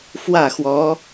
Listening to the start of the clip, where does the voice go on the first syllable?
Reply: falling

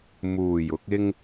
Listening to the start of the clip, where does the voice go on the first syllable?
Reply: low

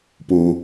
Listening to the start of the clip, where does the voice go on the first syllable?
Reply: high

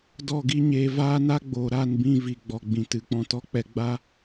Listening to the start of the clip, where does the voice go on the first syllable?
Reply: falling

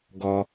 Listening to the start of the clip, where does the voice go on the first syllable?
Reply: low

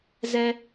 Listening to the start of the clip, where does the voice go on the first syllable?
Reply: high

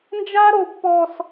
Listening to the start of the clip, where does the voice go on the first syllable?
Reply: high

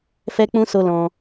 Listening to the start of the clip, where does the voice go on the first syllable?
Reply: high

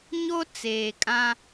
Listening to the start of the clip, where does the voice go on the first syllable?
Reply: high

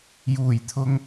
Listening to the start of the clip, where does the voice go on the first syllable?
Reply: low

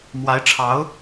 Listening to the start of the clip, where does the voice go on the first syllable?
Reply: rising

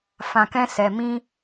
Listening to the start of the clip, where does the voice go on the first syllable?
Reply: low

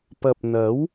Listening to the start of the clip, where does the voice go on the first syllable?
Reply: low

